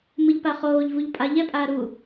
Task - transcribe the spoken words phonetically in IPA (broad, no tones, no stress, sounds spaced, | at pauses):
m ɯ ʎ p a χ oː ʎ v u ʎ pʼ a ʎ ɛ pʼ aː ɾ u